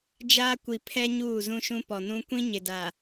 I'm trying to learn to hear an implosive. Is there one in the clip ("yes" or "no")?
no